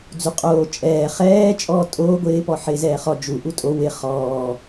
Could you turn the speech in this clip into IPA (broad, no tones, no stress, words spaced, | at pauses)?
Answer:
d͡zuqʼoː t͡ʃʼɛː χɛː t͡ʃʼɔːtʼoː ɡʷɪːpɔ ħɪːzɛːχɔ d͡ʒu ʔutʼo wɪ χɔː